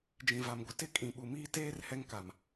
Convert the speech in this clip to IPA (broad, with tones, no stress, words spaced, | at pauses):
d͡ʒĩ˨va˨mɡʷɪ˨ tɪ˦kʼĩ˨ɓu˨miː˦ teː˦r hɛ˦ŋka˨m